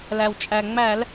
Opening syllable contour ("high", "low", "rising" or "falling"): low